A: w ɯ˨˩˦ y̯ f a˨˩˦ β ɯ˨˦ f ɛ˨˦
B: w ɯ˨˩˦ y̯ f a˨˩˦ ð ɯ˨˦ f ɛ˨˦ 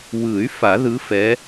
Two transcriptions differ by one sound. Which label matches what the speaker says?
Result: B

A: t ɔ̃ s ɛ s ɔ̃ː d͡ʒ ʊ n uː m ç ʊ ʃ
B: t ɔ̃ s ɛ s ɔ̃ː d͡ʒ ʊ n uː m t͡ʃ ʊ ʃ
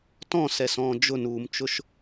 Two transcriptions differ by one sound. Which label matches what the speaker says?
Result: B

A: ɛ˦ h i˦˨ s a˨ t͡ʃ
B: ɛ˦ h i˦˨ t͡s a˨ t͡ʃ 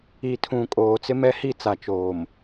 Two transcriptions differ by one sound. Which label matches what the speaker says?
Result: B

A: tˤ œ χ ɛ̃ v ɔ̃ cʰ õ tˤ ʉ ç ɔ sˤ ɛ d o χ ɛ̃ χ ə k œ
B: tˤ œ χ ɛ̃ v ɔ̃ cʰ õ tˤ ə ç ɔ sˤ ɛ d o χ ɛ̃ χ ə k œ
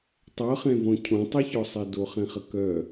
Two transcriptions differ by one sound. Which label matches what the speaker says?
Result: A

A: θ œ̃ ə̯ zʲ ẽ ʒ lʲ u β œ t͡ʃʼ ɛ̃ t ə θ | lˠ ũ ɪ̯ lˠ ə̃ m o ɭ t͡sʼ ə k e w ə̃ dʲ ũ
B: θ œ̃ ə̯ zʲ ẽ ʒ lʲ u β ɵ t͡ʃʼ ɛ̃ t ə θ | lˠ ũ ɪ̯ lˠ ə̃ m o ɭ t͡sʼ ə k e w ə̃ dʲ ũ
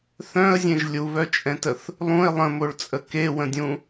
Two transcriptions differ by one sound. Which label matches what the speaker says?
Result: A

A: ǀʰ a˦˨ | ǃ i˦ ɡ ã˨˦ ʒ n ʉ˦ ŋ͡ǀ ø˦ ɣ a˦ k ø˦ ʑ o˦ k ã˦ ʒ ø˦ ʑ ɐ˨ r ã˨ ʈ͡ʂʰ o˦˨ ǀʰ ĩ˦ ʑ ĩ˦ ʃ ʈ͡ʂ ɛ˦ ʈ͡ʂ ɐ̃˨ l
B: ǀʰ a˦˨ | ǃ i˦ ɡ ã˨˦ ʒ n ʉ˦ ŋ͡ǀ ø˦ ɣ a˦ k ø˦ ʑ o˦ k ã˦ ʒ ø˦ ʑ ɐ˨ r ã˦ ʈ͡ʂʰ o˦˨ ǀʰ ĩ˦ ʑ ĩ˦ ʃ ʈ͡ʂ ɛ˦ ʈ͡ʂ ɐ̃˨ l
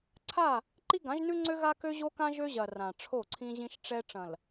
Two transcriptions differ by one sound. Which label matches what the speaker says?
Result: A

